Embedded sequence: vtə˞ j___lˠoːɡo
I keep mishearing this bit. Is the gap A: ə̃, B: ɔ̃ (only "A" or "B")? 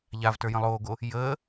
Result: A